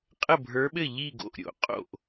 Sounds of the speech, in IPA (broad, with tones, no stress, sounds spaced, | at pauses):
qʼ ə˥˨ bʱ ə˞˧˥ ɓ ɘ˥˨ ʎ i˥˨ ɡ o̰˥˨ ʔ ɾʲ o̰˧˥ qʼ o̰˥˨ ʔ